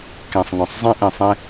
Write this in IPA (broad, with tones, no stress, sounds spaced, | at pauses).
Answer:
k ẽ˨ sˤ ŋ ɔ̃˨ sˤ zˤ ẽ˦ ʔ ẽ˨ sˤ ẽ˦